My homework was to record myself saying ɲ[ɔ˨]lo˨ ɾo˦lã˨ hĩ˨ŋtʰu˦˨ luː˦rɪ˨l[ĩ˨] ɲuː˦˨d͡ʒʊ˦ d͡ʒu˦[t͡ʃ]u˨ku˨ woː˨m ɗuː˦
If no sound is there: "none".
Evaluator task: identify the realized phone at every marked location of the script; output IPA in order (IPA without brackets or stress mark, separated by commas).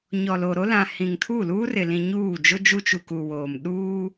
ɔ˨, ĩ˨, t͡ʃ